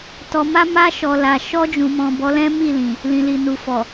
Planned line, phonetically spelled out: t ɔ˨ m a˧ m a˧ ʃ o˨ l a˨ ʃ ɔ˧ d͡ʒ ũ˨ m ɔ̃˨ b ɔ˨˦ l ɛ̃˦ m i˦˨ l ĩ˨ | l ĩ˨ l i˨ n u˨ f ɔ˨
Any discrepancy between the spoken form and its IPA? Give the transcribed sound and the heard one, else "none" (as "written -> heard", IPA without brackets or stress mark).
o˨ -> ɔ˨